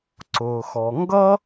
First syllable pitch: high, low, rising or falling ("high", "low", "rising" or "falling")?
low